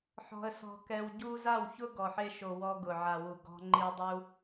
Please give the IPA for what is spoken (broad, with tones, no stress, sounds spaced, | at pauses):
ħ ɔ̤˧ ə̯ s ɔ̤˧ k ɛ˧ w ɟ u˦ z a˦˨ w ç ʊ˦ ɡ ɔ˨ ħ e˧ ʃ o˨ w ɔ˧ ɡ ʊ˨ ʕ a˨ w u˨ ɡ ɔ̤˦ ŋ͡ǃ i˦ w dˤ u˦